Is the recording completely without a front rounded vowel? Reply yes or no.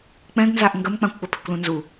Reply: no